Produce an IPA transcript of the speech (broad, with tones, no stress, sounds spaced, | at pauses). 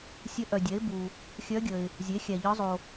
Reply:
sʲ ə˧˥ ʔ œ˨ dʲ ɛ˩˥ ɪ̯ b u˨ | xʲ œ˧˥ ɡʲ ə˨ ɪ̯ | zʲ e˩˥ xʲ æ˨ ʎ ɒ˧˥ zˤ o˨